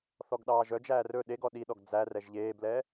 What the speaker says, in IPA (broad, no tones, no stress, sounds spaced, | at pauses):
θ ɔ ɡ ɗ ɑː ʒ œ d͡ʒ æː r ɵ ɗ e ɡ ɔ ɗ i ɗ ɔ ɡ d͡z æ r ɛ ʒ ʎ eː b l ɛː